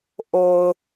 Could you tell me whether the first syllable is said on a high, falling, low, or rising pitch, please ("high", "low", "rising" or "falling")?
low